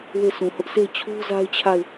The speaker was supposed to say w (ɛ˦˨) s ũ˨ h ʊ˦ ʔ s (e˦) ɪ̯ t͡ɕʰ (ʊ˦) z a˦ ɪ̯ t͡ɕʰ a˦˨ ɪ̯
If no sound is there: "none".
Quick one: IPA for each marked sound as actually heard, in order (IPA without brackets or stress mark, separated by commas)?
e˦˨, e˦˨, u˦